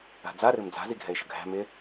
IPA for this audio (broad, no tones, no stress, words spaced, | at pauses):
a̤d͡za ɾɯɾɨmd͡za̤ ziɡʱɛɪ̯ʃəɡʱæ̤ mɪ